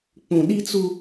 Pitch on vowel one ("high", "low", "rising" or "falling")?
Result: low